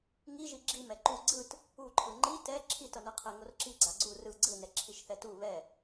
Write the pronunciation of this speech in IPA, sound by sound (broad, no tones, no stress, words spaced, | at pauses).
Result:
ŋiʒi ɡ͡ǁim ɛǃu ɡ͡ǀɯt | uǃʰɯ ŋ͡ǃi tɛ ǁʰitʌnɯqʰɛ ŋorǁi ɡ͡ǀaɡ͡ǀu rɯ ɡ͡ǀɯnɛ ǁʰiʃθɛtu βɛ